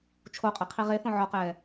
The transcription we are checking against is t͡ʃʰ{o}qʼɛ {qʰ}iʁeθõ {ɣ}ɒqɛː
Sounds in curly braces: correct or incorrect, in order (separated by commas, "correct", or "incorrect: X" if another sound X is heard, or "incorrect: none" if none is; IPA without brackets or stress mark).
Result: correct, correct, incorrect: ʕ